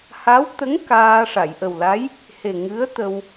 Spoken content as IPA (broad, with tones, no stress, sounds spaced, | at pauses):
h a˧˥ w t̪ ə˧˥ ŋ k aː˧ ʂ a˨˩˨ j ʔ ə˨˩ w l a˧˥ j | h e˨˩ ŋ ɨ˧˥ ə̯ t̪ ə˧ w